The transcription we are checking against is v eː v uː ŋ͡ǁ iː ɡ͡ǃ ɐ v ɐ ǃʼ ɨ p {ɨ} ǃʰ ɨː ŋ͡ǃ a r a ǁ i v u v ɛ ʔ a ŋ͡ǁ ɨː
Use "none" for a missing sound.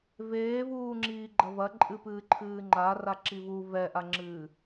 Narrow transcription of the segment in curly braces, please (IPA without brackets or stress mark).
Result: ɨː